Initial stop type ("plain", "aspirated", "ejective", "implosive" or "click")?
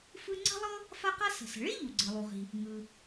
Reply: click